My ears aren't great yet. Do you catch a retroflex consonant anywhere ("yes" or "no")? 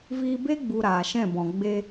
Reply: no